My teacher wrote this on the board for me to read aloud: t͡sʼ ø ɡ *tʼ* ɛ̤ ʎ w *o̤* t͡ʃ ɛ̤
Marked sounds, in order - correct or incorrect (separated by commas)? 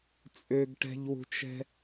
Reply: incorrect, incorrect